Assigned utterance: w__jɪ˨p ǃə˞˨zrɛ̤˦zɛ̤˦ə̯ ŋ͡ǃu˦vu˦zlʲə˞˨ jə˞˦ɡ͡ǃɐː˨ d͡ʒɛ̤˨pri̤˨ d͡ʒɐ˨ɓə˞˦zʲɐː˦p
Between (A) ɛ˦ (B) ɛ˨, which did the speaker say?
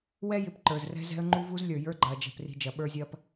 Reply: A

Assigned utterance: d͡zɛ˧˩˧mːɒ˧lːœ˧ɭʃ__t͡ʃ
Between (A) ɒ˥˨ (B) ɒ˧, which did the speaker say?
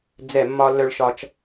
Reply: B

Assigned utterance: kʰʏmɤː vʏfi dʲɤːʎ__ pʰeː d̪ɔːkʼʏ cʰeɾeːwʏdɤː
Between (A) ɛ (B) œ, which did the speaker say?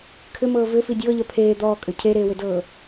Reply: B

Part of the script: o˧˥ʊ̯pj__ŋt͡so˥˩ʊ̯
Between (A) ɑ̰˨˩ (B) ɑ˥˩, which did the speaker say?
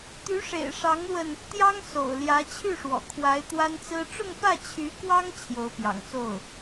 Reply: A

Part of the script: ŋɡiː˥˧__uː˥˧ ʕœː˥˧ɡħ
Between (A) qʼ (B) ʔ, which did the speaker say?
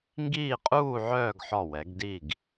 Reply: A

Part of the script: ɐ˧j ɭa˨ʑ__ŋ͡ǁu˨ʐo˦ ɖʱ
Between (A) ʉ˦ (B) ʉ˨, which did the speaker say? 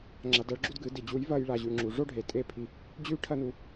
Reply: B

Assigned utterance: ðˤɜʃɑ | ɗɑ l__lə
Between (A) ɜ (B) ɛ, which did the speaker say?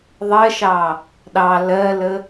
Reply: A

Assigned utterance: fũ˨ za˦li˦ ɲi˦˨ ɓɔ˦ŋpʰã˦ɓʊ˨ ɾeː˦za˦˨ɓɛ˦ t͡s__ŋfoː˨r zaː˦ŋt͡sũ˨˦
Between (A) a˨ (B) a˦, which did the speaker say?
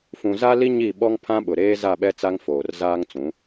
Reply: B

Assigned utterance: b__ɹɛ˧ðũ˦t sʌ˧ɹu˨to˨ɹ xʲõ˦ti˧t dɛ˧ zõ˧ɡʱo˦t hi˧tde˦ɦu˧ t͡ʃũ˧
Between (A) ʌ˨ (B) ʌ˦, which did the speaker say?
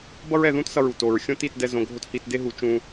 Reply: B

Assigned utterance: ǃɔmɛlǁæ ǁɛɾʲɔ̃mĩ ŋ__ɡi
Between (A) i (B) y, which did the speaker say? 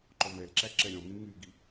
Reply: B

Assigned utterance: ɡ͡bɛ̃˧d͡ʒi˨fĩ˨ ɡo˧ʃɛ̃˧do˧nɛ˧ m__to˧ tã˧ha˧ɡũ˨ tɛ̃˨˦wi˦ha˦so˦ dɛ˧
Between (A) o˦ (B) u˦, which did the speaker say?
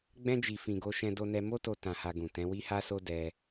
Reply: A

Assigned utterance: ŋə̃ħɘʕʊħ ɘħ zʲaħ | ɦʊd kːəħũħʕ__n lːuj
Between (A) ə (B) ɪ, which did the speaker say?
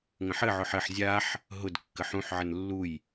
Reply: A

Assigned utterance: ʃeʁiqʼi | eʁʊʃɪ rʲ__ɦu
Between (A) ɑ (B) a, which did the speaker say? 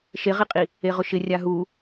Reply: B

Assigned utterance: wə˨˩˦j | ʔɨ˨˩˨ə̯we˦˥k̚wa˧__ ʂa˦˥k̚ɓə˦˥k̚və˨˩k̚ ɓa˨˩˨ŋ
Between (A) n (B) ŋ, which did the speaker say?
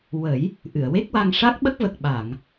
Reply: B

